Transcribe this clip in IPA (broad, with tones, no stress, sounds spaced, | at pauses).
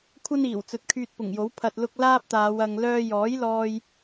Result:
kʷʰ ɐ˥ n iː˨˩ w t͡s ɵ˨˥ t̚ kʰ yː˧ t̚ p ʊ˨˩ ŋ j o˨˥ w pʰ ɐ˨ t̚ l ʊ˧ k̚ l aː˥ p̚ t̪ aː˨˧ w ɐ˧ ŋ l œː˥ j ɔː˨˥ j l ɔː˧ j